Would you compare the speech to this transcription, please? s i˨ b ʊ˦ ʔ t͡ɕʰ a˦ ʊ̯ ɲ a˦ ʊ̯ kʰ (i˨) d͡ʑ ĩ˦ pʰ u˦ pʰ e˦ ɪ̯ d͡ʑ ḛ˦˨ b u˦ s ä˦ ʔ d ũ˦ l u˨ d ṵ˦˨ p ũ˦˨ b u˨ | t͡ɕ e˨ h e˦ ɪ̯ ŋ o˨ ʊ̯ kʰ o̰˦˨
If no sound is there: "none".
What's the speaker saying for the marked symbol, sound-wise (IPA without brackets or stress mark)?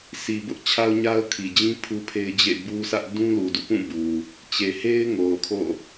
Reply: i˨